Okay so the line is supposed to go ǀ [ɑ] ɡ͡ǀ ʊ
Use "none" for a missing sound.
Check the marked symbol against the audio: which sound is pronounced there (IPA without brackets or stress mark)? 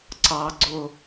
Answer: ɑ